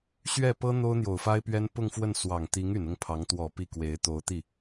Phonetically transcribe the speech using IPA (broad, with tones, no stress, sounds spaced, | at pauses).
ɕ ɥ ɛ˥˩ p ɤ˥ n̪ o˥ ʊ̯ n̪ j o˨˩ ʊ̯ f a˥ ɪ̯ p ɥ ɛ˥ n p ʊ˥˧ ŋ f w ə˥˩ n s w ɑ˨˩ ŋ t̪ i˧˥ ŋ y˨˩ n ʊ˥˩ ŋ pʰ ɑ˧˥ ŋ t̪ w ɔ˨˩ p i˥˩ k w e˧˥ ɪ̯ t̪ o˧˥ ʊ̯ t̪ i˥˩